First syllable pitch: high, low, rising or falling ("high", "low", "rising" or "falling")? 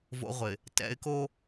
high